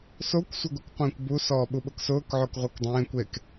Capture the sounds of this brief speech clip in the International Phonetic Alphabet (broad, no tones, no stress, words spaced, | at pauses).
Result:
sokʷ sʷəɡukʷqʷẽːkʷbu sɔːɓuɓʊksʊːk ʕokʁʷekdˤẽːkʷ ek